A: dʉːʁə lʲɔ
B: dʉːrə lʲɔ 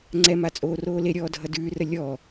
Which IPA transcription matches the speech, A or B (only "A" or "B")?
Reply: B